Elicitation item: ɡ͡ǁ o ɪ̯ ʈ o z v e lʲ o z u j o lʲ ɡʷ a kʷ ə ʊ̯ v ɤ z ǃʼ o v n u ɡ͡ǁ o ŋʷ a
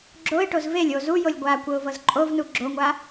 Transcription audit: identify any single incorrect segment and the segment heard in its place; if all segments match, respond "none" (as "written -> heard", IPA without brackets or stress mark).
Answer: none